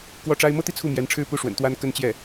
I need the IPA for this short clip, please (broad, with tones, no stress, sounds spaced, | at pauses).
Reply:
k w ɔ˥˩ ʈ͡ʂ a˥ ɪ̯ m ɤ˥ t̪ i˥˧ t͡sʰ u˥˩ m j ɛ˧˥ n ʈ͡ʂʰ ɻ̩˥˧ p u˥˩ ʂ w ə̰˨˩ n t̪ w a˥ n k ə˥ n t͡ɕ j ɛ˥˩